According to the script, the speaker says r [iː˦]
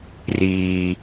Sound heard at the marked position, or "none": iː˨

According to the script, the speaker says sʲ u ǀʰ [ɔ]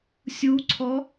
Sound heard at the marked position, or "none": ɔ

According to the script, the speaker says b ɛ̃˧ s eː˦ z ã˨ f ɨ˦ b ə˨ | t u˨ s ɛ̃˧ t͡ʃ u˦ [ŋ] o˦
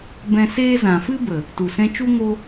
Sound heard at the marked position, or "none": ŋ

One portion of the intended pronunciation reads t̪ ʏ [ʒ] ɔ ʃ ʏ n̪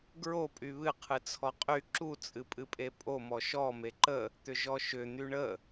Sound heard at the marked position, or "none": ʒ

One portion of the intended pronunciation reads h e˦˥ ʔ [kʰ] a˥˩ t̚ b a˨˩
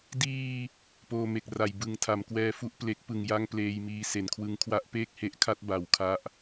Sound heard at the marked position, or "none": kʰ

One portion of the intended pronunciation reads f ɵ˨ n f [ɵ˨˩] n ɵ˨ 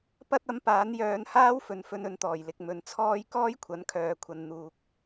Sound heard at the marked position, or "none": ɵ˧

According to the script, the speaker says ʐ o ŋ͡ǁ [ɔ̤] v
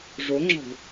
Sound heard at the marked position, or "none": ɔ̤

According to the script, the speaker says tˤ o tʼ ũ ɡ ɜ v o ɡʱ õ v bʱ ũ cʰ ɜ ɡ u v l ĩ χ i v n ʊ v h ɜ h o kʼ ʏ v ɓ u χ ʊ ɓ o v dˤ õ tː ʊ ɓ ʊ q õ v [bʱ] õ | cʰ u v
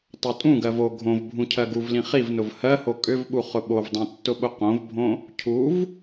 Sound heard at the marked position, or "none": bʱ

